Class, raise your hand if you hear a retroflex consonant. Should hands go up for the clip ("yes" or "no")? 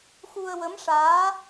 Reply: yes